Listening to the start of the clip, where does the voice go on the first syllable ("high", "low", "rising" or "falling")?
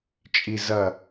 low